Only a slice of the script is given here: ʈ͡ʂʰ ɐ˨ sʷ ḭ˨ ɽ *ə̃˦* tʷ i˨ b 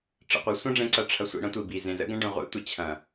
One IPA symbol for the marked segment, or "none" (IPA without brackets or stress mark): ɐ̃˦